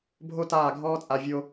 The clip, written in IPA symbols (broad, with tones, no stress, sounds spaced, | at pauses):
bʱ o˦ t aː˦˨ ɡʱ ɔː˦ t͡sʼ a˧ vʲ o˧